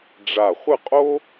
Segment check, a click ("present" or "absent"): absent